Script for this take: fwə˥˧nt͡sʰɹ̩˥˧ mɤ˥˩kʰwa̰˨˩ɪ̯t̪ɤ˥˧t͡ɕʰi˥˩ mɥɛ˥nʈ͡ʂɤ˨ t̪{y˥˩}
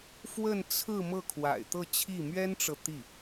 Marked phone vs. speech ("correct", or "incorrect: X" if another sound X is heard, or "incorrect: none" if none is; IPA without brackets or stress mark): incorrect: i˥˩